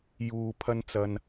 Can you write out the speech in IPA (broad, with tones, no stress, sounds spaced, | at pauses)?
j uː˧ pʰ ɐ˧ n t͡s ɐ˧ n